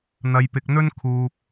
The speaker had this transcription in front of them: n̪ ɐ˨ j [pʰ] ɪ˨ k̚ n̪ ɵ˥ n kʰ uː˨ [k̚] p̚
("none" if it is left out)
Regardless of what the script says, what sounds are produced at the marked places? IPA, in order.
p, none

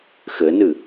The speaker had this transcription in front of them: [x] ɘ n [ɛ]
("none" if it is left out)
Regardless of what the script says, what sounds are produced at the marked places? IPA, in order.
x, ɨ

